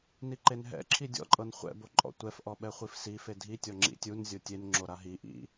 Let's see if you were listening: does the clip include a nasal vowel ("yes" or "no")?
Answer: no